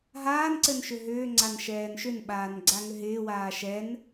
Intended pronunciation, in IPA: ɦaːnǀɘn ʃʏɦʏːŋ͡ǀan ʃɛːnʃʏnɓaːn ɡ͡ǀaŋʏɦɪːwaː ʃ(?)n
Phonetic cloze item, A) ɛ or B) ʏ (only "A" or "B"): A